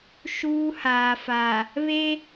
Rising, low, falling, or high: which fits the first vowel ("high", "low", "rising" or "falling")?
high